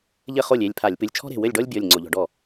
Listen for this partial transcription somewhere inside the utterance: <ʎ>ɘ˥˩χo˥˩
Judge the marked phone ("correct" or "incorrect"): correct